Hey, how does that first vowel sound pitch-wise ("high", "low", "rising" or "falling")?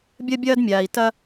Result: high